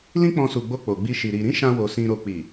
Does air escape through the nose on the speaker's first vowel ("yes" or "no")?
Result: yes